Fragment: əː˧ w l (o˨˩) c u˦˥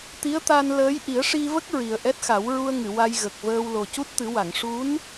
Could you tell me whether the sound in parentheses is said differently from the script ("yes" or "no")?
no